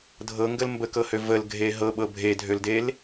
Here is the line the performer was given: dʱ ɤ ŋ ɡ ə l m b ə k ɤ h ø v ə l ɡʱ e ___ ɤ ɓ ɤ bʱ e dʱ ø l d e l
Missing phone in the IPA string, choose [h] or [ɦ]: ɦ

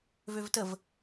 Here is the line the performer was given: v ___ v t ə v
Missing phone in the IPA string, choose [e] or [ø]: ø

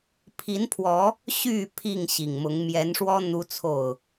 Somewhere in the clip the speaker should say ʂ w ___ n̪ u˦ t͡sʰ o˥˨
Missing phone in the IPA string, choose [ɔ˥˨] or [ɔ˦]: ɔ˦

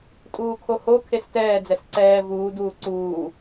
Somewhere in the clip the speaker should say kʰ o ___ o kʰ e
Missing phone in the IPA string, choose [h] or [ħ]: h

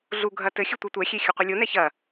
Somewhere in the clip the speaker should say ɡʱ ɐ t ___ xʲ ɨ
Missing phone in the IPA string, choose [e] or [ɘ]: ɘ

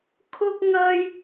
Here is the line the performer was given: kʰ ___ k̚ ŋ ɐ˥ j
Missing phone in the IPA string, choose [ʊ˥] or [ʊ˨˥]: ʊ˥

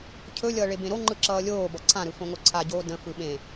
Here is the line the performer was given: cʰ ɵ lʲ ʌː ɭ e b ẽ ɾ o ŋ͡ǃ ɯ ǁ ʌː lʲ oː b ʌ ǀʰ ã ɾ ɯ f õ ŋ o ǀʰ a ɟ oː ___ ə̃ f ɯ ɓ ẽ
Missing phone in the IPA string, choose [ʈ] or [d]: d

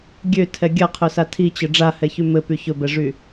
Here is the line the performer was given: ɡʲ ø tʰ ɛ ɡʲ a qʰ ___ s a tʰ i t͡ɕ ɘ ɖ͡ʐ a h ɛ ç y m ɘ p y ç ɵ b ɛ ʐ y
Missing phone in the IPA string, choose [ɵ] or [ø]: ɵ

